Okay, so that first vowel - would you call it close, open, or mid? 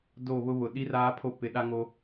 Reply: mid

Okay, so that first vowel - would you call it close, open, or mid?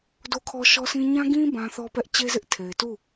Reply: mid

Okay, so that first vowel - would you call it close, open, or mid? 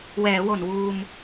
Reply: mid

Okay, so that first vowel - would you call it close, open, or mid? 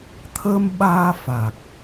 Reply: mid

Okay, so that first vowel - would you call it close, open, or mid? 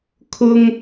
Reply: close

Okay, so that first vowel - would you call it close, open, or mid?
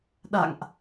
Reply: open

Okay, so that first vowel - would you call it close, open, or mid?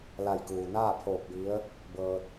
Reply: open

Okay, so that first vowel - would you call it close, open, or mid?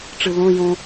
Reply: close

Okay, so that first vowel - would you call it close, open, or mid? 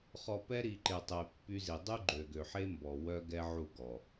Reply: mid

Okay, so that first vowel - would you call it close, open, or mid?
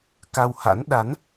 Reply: open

